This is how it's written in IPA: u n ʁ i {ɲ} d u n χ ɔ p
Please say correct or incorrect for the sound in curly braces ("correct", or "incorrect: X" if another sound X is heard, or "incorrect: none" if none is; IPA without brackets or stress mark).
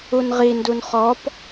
incorrect: n